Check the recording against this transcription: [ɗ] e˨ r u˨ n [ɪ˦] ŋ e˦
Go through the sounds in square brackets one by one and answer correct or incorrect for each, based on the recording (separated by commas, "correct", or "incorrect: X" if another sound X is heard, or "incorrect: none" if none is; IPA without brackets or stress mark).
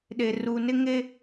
correct, correct